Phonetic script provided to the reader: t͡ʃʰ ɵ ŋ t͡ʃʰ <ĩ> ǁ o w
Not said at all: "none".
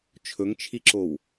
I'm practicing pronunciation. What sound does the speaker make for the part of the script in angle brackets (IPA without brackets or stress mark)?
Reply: i